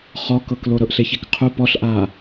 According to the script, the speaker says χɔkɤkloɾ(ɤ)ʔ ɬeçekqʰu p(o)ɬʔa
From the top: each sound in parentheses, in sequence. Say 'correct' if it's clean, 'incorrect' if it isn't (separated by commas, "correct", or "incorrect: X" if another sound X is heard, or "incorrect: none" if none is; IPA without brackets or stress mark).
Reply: correct, incorrect: ɔ